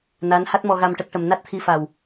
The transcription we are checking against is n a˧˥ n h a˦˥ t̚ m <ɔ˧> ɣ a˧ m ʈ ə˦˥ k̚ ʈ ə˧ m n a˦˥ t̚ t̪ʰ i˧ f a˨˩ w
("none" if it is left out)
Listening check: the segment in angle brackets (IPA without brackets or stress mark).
ɔ˧